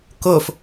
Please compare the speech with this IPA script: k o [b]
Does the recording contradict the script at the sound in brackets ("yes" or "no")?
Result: yes